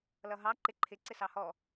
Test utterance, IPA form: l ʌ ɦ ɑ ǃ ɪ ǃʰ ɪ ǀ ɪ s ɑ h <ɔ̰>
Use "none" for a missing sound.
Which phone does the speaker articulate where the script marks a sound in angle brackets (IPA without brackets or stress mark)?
ɔ